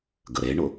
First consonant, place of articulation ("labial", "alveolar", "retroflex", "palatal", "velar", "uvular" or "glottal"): velar